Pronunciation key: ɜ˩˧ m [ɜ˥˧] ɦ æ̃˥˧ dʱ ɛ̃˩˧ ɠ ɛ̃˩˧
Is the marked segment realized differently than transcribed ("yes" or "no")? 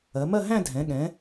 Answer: no